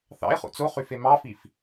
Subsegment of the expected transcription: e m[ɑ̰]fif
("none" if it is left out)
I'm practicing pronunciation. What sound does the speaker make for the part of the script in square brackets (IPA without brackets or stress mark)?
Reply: ɑ